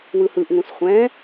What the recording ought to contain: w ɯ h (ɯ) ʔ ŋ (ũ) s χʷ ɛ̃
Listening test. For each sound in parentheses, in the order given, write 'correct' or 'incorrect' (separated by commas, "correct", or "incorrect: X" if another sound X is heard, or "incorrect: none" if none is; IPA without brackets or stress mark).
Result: correct, correct